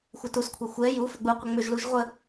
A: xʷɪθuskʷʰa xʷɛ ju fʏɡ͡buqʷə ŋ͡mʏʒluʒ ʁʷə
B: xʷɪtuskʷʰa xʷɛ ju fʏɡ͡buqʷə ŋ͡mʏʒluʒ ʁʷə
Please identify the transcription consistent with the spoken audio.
B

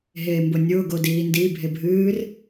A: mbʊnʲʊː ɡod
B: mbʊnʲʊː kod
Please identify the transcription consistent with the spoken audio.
A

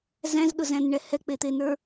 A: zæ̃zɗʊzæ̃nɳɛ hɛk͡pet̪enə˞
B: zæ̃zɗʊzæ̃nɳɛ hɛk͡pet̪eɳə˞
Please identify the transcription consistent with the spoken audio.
A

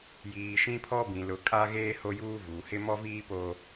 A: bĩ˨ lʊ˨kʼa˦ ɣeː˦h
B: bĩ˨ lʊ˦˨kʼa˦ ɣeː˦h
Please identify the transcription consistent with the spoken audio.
A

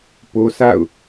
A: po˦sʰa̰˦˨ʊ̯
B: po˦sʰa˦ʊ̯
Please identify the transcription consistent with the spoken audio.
A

